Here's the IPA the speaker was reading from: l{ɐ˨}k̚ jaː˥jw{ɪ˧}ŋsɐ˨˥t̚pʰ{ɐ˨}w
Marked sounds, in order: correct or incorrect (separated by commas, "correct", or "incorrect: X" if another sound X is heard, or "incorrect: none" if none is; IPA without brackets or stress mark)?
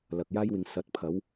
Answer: correct, incorrect: ɪ˨, incorrect: ɐ˨˥